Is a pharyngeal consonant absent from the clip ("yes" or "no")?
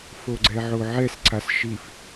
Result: no